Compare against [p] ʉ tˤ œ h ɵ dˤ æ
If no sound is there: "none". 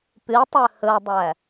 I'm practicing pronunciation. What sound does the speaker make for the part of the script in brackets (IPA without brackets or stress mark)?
p